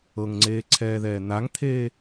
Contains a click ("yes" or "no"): yes